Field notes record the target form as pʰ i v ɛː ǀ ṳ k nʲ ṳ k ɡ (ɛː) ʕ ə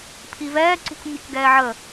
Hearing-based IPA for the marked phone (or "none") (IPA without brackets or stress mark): ɛː